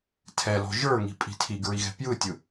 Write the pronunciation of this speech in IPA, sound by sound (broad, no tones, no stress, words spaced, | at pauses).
tʰɛlɔ̤ ʒə˞ŋi̤ pʼi̤tʰiɡɹi ɣɛ̤pjɯtʲɯ